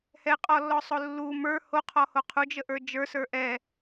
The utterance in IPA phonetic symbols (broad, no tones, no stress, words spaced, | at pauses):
hɛqʼɔlːɔsˤo lːu mə˞ hoqʰɔho qʰud͡ʒəʔə˞ d͡ʒə˞sə˞ ʔɛ